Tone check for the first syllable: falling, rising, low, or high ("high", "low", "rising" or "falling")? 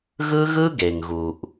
high